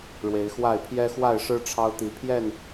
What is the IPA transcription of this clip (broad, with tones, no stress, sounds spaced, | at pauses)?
ɻ w e˨˦ ɪ̯ x w a˥˨ ɪ̯ pʰ j ɛ˦ x w a˥˨ ɪ̯ ʂ ɻ̩˦ ʈ͡ʂʰ ɑ˦ ʊ̯ t̪ i˨˦ pʰ j ɛ˥˨ n